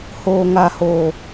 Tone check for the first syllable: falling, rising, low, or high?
high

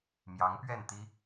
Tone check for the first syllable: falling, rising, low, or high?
rising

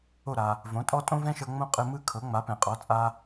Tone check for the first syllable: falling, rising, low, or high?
falling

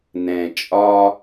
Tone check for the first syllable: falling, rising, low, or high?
low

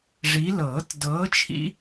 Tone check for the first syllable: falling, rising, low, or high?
rising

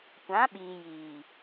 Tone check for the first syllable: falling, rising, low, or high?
rising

